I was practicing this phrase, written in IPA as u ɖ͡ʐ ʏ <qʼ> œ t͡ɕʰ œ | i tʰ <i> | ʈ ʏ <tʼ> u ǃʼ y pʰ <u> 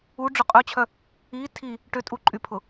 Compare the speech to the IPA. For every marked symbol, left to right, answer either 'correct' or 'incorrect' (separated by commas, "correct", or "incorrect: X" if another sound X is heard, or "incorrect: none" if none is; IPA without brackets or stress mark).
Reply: correct, correct, correct, incorrect: ʊ